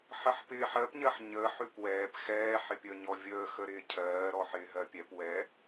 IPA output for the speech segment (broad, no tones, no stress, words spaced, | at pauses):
ħəħpɪːħ ɜpɲɜħ ɲəːħ ʉpwɛːp xɛː ħɪpʲəːɲɔvʲəː xəɾɪːcʰɜː ɾɔħɪːɦɜpʲɛp wɛ